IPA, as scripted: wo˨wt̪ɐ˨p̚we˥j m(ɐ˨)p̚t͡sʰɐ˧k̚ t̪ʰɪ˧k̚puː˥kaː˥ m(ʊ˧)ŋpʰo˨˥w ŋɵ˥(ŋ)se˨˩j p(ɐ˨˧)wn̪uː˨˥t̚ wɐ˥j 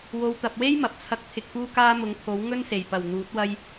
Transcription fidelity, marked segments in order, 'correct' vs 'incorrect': correct, incorrect: ʊ˨˥, incorrect: n, incorrect: ɐ˨˩

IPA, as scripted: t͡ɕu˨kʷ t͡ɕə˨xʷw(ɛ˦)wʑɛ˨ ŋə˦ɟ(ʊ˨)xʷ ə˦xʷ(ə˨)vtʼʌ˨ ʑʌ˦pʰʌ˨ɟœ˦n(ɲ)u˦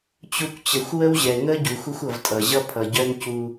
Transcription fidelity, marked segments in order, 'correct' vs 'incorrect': incorrect: ə˦, incorrect: u˨, incorrect: ʌ˨, incorrect: c

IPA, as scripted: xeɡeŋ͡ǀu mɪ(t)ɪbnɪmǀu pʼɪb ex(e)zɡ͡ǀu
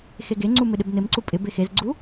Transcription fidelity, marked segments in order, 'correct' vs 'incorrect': incorrect: ɗ, correct

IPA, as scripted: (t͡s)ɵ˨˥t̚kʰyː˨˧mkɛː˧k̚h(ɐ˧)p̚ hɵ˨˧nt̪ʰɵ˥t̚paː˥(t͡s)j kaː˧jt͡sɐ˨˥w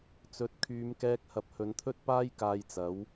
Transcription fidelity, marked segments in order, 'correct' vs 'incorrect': correct, incorrect: ɐ˨, incorrect: none

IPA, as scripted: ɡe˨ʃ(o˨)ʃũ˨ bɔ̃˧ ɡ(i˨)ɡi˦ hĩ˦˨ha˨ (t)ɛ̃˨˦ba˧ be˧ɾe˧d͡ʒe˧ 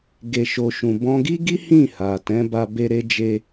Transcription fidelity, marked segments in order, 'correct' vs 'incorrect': correct, incorrect: i˦, correct

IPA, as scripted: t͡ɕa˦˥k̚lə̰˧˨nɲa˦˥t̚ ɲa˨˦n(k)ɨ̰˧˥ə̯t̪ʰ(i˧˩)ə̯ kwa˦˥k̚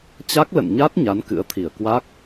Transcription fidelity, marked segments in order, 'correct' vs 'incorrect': correct, correct

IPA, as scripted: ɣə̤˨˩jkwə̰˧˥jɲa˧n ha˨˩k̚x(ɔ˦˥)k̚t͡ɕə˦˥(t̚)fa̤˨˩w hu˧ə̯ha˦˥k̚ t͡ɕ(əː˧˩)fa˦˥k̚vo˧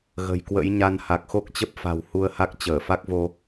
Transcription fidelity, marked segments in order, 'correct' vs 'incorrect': incorrect: o˦˥, incorrect: p̚, correct

